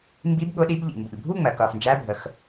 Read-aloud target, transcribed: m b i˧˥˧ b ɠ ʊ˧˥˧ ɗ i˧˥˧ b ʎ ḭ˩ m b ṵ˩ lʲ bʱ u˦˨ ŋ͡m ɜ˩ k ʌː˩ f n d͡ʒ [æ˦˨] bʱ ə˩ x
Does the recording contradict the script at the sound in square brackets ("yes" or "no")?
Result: yes